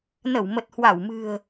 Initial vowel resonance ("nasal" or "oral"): oral